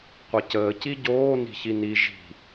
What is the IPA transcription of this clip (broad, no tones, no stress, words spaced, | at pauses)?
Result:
qʷɘcəː ciɟoːni̤ç ini ʒi̤